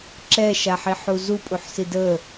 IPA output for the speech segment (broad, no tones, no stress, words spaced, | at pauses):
ǁɛʃaħiħu zupʼuħsi də